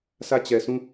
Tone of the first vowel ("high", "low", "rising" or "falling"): falling